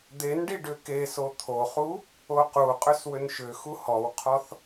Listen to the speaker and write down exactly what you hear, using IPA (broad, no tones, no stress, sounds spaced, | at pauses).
d̪ e n ɖ i ɖ ʏ k e s o t̪ʰ o χ u | o q u qʼ ʏ s w ʏ n ʃ ʏ x u h ɔ w qʰ ɔ θ